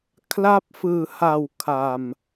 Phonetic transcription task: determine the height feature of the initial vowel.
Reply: low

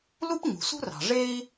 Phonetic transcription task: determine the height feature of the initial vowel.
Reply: high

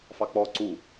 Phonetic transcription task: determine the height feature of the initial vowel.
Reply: low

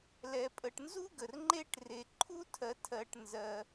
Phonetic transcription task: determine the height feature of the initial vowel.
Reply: mid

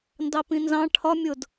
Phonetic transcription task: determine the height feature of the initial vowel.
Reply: low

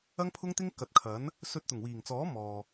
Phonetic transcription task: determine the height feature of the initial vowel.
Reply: low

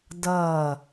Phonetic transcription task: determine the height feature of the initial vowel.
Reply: mid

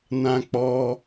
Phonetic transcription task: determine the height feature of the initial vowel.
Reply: low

